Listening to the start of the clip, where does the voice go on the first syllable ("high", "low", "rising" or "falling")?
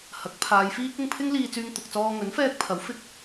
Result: rising